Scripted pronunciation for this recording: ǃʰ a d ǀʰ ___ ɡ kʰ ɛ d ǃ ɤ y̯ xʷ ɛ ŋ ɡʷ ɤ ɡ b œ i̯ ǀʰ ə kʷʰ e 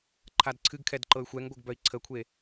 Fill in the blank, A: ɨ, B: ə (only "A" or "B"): A